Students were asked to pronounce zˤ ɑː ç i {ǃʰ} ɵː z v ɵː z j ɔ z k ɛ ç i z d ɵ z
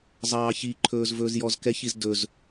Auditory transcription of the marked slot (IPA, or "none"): ǃʰ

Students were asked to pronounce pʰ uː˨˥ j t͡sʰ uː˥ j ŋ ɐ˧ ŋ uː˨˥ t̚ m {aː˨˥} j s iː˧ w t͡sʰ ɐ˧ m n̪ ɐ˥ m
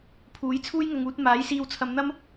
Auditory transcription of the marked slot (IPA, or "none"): aː˨˥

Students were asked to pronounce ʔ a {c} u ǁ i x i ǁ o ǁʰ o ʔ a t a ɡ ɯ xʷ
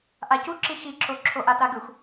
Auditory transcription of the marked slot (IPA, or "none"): c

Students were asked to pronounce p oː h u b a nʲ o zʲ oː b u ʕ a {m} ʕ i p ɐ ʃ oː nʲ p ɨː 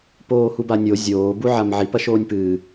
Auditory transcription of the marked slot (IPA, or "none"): m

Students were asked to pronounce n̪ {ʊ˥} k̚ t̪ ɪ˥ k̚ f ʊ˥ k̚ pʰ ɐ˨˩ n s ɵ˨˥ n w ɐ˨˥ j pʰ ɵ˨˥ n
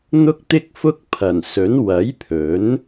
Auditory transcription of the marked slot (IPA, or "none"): ʊ˥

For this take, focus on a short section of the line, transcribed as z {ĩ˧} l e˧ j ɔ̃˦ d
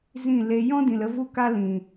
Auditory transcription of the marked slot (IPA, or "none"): ĩ˦˨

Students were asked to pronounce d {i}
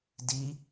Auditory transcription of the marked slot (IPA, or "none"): i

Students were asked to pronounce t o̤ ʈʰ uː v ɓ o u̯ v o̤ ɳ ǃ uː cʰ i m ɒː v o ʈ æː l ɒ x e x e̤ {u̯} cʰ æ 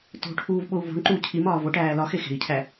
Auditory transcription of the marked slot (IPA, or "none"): i̯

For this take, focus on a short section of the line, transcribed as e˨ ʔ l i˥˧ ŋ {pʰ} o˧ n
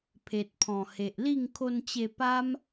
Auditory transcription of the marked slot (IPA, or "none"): kʰ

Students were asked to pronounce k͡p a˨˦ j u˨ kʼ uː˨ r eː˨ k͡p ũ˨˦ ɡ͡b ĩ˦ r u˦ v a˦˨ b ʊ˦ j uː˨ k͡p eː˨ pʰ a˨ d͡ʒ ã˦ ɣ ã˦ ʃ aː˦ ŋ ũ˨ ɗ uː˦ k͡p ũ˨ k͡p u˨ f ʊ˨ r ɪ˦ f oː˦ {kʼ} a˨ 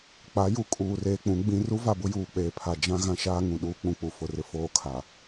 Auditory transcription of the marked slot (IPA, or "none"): kʰ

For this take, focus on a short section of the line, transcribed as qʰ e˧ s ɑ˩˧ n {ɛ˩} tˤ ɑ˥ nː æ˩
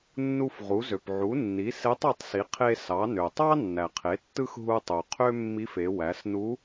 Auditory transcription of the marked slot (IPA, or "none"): ø˩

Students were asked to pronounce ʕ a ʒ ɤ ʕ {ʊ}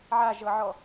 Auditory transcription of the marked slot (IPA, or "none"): ɔ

